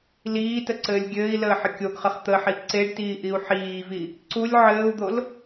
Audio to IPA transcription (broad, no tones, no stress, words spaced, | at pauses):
liːtəǀɘːlʲ ɡʲɘːi̯ləːħə kʲoɡχəχ t̪əħi ǀeɖtiːʔiu̯ ħiːvi | ǀulʲ ʕɘːu̯d̪ol